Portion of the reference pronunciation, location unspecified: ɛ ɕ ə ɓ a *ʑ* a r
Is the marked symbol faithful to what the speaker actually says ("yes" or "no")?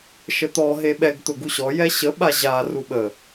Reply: yes